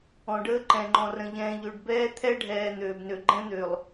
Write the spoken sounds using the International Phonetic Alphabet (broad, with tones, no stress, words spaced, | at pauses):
ɔ̃˨ɖəː˦ ǃɛ̃˨ŋ͡ǃɔ̃˨rə̃˨ʎɛ̃ː˨ ʎø˨ɖbɛː˦ t̪ʰɛ˦ɖʱɛː˨ n̪øː˨bnø˨ ɡ͡ǃɛ̃˦n̪ø˨lˠ